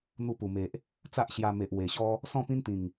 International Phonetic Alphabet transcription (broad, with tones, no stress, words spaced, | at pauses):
n̪u˧pu˨˩me˨ʔ | t͡sa˦ʔɕja˧ me˨ʔwe˨˩ɕɔ˦ | sɔ̃˥˧pĩ˦nt̪ĩ˨˩ŋ